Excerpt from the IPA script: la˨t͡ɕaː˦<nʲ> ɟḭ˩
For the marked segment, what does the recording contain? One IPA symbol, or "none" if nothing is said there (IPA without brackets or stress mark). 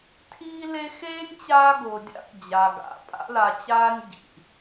nʲ